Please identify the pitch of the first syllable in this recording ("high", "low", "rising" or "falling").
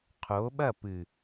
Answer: rising